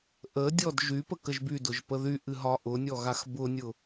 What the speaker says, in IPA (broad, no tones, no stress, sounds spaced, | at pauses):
ʔ ə dʲ ɔ d ʒ y p ə k ə ʒ b y d ʊ ʒ p ə ð y ʔ ɨ ɦ ɒ ʔ ʊ nʲ ɔ ɣ a x b ʊ nʲ ʊ